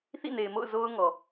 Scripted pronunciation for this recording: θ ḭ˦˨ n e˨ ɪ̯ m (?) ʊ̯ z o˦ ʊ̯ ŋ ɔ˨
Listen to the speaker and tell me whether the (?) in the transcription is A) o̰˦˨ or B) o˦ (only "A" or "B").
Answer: A